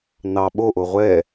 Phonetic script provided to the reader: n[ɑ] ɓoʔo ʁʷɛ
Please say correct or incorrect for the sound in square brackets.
correct